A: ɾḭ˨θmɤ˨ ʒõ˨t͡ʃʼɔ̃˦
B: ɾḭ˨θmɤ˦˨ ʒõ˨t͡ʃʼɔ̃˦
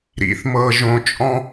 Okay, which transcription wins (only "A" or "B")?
A